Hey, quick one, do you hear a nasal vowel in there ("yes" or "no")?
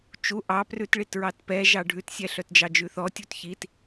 no